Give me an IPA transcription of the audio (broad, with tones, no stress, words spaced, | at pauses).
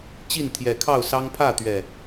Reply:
t͡ɕi˥˨nt̪ʰjɛ˨˩kʰɑ˥˨ʊ̯sɑ˦ŋ pʰä˥˨t̪ɥɛ˨˩